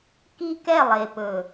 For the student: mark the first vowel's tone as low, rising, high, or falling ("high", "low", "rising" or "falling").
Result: high